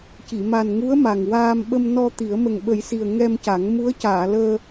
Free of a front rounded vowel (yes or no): yes